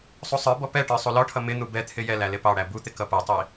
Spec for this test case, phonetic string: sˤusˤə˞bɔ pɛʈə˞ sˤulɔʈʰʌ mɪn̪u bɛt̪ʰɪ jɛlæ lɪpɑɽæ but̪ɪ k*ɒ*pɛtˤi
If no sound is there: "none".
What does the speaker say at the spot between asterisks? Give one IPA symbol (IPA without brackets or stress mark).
ʌ